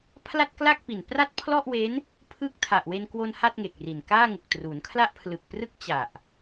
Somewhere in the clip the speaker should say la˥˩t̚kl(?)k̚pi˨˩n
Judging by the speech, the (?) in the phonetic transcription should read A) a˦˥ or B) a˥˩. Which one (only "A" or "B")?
B